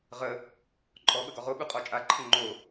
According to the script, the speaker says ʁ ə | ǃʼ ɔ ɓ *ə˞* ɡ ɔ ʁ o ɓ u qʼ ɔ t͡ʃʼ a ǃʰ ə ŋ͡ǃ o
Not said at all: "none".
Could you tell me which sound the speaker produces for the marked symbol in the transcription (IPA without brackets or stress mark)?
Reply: ə